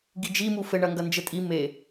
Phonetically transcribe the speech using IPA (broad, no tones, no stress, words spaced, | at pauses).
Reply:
ɡid͡ʒi mufɘ ɳɐŋɡɐnd͡ʒɘtʼi me